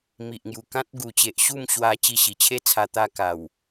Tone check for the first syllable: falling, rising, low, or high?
low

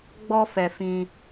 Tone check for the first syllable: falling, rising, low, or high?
high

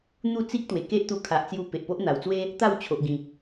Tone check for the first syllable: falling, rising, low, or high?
falling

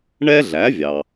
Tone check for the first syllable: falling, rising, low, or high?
high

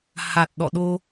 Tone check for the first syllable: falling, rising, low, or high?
low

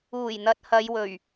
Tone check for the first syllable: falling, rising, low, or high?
low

